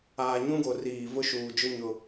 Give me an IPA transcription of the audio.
aː˨ɲũ˦ɡo˨ riː˨ vʊ˦ʃuː˨d͡ʒʊ˦ ɲʊ˨

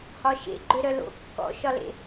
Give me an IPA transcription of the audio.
hɒʃḛɡ͡ǃø ɾœlo̰ kːɔ̰ ʃɒlḛ

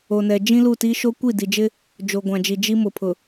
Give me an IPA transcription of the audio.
o˨nɛ˨ d͡ʒĩ˦lu˦˨ti˦ ʃo˦kʷi˦˨di˨d͡ʒɪ˦ | d͡ʒo˨ɡʷã˨d͡ʒi˨ d͡ʒi˦mʊ˨pʰʊ˨

